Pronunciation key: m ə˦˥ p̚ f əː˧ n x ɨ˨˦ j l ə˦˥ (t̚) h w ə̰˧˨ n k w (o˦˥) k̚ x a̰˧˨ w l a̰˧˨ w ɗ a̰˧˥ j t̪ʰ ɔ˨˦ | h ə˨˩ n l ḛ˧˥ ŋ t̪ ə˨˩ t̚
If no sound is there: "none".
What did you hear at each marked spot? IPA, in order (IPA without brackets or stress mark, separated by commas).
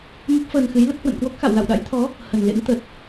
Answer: t̚, o˦˥